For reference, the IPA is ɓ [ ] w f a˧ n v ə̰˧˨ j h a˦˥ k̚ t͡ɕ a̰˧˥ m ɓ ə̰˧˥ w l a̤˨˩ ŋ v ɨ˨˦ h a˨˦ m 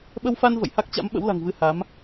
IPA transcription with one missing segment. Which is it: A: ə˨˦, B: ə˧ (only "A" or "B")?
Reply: B